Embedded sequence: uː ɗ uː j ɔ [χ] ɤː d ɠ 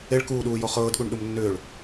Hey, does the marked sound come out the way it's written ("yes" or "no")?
yes